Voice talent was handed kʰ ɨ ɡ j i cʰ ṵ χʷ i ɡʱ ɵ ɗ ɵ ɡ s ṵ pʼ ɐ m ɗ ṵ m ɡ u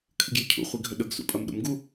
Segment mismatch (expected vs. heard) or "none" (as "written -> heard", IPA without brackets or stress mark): none